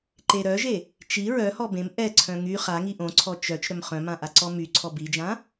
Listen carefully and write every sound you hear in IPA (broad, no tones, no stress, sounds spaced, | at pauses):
ǃ e ɾ œ ʒ e | t͡ʃ i ɹ œ h ɔ b ẽ m ʔ ɛ ǀʰ œ̃ ŋ y χ a ŋ i ʔ õ ǀʰ ɔ t͡ʃ œ t͡ʃ ɾ œ m χ œ̃ m ã ʔ a ǀ ɔ m y ǀʰ ɔ b i d͡ʒ ã